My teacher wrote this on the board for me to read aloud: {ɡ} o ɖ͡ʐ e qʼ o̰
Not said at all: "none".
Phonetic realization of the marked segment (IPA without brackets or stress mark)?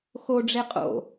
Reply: x